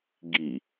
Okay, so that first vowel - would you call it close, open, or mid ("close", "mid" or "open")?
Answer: close